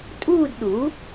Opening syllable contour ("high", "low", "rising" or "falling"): falling